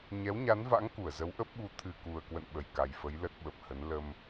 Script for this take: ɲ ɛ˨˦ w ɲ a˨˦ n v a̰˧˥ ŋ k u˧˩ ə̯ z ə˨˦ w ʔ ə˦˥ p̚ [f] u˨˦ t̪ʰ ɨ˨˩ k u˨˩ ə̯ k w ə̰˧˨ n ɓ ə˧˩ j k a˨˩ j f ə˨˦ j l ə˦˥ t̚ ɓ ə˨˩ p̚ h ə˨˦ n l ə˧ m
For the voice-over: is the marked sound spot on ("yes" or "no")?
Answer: no